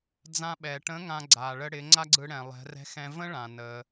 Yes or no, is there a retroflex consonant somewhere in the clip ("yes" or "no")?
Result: yes